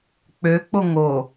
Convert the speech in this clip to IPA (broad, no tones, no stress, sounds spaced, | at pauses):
k͡p ø k͡p o ŋ o